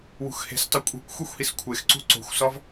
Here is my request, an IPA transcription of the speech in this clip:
wṳxhe̤stˤi kʷʼi̤kʷ xʷexʷhiskʷʰexǀṳ ǀo̤xʷsɒv

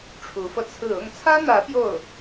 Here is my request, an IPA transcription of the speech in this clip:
ʈ͡ʂʰu˧˥fɤ˧t͡sʰɹ̩˥˧ ʊ˥˩ŋt͡sʰä˥n̪ä˧˥ pjo˥˩ʊ̯

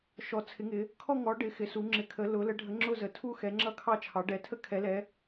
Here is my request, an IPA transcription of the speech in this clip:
ʃɔ˨˦ t͡sʰɪ˨˦ŋɪ˨˦ | kʰɔ˥˧ŋɔ˨˦ ɖɪ˨˦ xɪ˨˦su˨˦ ŋ͡ǁɪ˨˦kʰə˨˦lʊ˨˦ lə˨˦ɖʱə˨˦ ŋ͡ǁʊ˥˧zə˨˦ tʰu˥˧ xɛ˨˦ŋ͡ǁʌ˥˧kʰɑ˥˧t͡ʃʰɑ˨˦ ɖɛ˨˦tʰə˥˧ kʰɛ˨˦lɛ˨˦

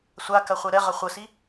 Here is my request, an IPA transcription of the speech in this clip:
sʷakɐχʷɛ ɾɛʁɐ χʷəsi

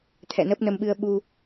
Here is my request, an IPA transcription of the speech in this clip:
t̪ʰɛ̰˧˨nəː˦˥p̚nə˧mɓɨ˧ə̯ ɓu˧

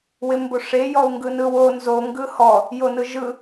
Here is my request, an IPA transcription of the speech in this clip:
wɪmboʂe jɔu̯ŋɡɯnɯwo nzo ŋɡɯhɔ | jonɯʒɯ

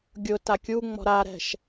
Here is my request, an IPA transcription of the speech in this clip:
ɡʲʊ takʲuŋ͡mɔ̤ ɾaɾɛ̤ʃ

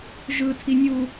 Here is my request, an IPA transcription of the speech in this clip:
ʒɯtʰinʲu

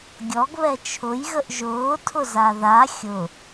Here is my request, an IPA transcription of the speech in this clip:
ɡʲɔɡβɛ t͡ʃʰʊjɣəʔ ʒʊːtʰʊza ða xʲʊ

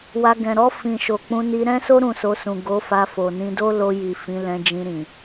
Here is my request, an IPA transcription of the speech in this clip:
wa˧ɡɛ̃˨ ɾɔ˧fĩ˨ ʃo˨k͡pũ˧ni˧ ɾɛ̃˦so˦ ɾũ˦˨so˧sũ˨ ɡo˨˦fa˧ fo˨nĩ˧ do˦lo˧ ji˨fĩ˨˦ lɛ̃˧d͡ʒĩ˧ ɾĩ˨

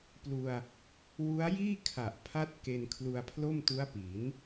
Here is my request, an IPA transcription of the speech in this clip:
plu˧a̯ | wu˦˥a̯ jiː˥˩kʰa˨˩ʔ pʰa˦˥t̚ ke˧n kʰlu˧a̯pʰlo˥˩mtu˦˥a̯pi˩˦n

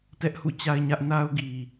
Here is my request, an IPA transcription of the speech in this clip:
tɛ˦ʔhṵ˦˨t͡ɕa˦ɪ̯ɲä˦ʔ na˦ʊ̯ɡi˨

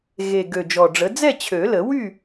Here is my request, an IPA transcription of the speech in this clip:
ɣe˨˩ ɡø˨˩d͡ʒɔ˨˩ɖ͡ʐə˩˥ d͡zɛ˥˨t͡ɕʰø˨˩˦lə˨˩˦wy˥˨

